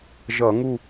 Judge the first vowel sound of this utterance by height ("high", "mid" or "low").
mid